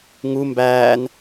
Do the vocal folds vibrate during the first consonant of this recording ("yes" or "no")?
yes